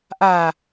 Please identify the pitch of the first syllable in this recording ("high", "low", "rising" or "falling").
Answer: low